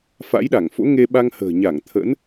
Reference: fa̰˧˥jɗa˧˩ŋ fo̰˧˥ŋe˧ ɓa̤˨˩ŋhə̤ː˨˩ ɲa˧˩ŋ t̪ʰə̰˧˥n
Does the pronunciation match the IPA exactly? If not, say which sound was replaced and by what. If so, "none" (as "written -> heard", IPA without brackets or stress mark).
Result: a̤˨˩ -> a˧